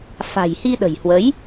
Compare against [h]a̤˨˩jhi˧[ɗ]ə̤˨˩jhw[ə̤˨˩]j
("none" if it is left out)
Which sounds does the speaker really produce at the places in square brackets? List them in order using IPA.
f, ɗ, ə˨˦

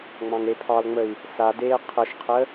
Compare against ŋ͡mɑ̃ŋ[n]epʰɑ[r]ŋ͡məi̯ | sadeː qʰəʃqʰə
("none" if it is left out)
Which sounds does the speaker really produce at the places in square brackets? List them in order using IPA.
ɾ, l

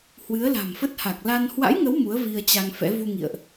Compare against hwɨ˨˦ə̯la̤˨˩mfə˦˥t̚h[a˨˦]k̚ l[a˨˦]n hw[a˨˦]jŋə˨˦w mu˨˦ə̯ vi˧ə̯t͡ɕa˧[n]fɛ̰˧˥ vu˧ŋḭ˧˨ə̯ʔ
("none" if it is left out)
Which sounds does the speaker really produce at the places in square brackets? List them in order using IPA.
a˨˩, a˧, a̰˧˥, ŋ

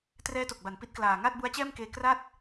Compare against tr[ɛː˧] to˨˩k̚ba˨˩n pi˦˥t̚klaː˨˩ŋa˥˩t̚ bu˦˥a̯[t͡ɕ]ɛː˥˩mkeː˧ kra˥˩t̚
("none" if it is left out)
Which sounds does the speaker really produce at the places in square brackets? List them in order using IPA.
ɛː˦˥, t͡ɕ

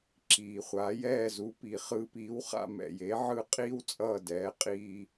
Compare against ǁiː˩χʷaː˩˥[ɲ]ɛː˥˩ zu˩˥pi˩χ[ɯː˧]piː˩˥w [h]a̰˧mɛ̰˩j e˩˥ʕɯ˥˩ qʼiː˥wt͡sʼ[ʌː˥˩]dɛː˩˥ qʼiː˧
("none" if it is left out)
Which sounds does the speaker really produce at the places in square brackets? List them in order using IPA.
j, ɯː˧, χ, ʌː˥˩

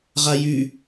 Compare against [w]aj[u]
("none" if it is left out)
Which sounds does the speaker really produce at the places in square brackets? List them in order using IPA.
ʁ, y

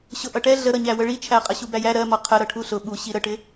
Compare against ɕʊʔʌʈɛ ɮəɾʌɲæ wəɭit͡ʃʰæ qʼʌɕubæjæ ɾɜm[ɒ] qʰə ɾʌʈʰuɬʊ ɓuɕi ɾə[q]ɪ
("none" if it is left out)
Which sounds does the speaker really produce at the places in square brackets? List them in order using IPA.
ɒ, ʈ

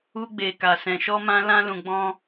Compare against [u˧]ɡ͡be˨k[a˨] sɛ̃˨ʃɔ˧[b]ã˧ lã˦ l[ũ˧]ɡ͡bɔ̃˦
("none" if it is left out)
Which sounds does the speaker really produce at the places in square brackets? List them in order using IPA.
u˧, a˨, m, ũ˧

